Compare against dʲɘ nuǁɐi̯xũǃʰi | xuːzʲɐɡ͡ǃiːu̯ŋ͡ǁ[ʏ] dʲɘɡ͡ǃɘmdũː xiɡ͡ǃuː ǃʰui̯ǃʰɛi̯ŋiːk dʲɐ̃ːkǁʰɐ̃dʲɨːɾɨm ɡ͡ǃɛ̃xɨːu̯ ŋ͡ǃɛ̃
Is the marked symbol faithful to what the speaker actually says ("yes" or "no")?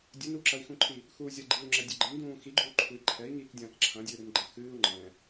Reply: no